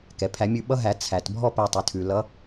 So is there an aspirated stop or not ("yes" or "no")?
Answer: yes